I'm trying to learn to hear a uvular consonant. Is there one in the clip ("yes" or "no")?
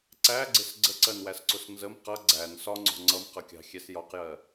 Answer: yes